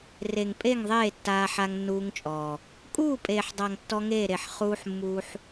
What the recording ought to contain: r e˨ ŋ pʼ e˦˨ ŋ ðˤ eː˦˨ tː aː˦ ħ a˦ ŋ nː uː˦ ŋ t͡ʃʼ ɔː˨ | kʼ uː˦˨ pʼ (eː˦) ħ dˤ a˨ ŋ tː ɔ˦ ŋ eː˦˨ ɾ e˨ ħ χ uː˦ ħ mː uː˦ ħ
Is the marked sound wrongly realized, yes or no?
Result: yes